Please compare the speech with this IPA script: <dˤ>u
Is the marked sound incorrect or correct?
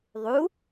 incorrect: ðˤ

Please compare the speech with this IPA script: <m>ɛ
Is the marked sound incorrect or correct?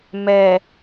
correct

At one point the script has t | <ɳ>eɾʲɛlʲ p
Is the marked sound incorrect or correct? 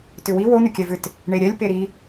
correct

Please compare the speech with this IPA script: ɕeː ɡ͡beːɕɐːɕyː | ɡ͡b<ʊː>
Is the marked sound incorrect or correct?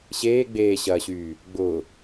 correct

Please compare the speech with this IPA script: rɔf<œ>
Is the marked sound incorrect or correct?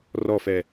incorrect: ɛ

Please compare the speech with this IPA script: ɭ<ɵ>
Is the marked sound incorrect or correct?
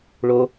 incorrect: o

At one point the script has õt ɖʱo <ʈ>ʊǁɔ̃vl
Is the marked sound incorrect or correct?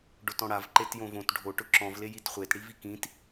correct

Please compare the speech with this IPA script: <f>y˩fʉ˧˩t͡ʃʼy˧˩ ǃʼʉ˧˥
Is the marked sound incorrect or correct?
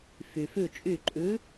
correct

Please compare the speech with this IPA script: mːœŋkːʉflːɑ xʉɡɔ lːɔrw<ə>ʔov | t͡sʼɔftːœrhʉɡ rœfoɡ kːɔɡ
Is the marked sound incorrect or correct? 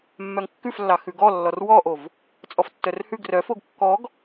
incorrect: ɔ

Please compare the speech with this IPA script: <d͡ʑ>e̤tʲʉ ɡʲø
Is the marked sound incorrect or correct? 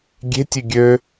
incorrect: ɡʲ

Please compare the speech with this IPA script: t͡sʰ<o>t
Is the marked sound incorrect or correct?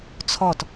incorrect: ɔ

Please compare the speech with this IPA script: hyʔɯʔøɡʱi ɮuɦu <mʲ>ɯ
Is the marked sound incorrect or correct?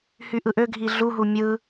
correct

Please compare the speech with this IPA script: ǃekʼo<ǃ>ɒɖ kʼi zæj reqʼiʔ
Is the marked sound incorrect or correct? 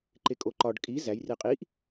correct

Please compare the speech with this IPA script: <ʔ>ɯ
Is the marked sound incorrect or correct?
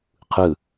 incorrect: qʰ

